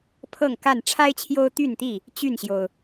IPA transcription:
pʰɤ˥˨ŋ ka˥˨n ʈ͡ʂʰa˦ɪ̯t͡ɕʰjo˦ʊ̯t̪y˥˨nt̪i˥˨ | t͡ɕy˥˨nɕjo˩ʊ̯

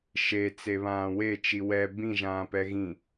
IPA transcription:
ʃe t͡seβãːwe t͡ʃiwɛ bĩ ʒãːpɛɣĩ

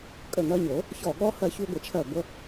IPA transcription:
kʼə˧˩ŋɜ˧ɲo˨˩˦ | çɔ˧˩ɠɔ˦˥ hɜ˧çu˧ɡʷə˨˩˦t͡ʃʰɜ˧˩ ɡʷə˦˥

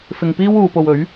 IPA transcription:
fɪ˧ŋpiː˥w uː˨˧po˧wɵ˨˥ɥ

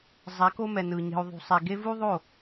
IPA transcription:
zˤɛ˨˦ko˦mɛ˨nɯ˨ ɲe̤˨u̯ðˤṳ˨sˤe˨ɡe˦ vu˦ðˤo˦˨

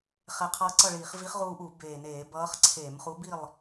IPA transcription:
χɛ˨˩qʰʌː˧ǀʌ˥˨ɭiː˧˩˧χ vi˧˥χʁuː˧ʔu˧˩˧ beː˨˩neː˧˩˧ bʌː˧˥χǀʰeː˧˩˧m χu˧˥bi˥˨lˠ

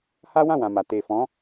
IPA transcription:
ha˦wã˦˨ wã˨ma˨ te˨fɔ̃˨˦

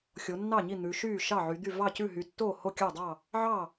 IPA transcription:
xʲo˩˧nːɑ˥˩ɲi˥˩ n̪ʉ˩˧ʃyː˥˩ ʃɑ˥˩ʕy˩˧d̪y˥˩ vɑ˥˩cʉ˥˩ɦy˩˧ tːoː˥˩ho˥˩kʲɑ˥˩dˤɑ˥˩ | ʕɑ˥˩

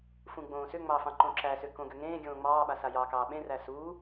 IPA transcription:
fũɡ͡bõːsʏŋ͡mɑ fɑ̃ǃõǁæsʏ kõɡʏŋẽːɡʲõː ŋ͡mɑːɓa sajɑkɑː ɓẽræ suː

